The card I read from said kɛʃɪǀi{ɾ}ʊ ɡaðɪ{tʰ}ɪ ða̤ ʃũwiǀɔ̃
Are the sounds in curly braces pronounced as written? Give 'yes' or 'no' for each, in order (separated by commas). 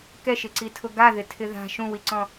no, yes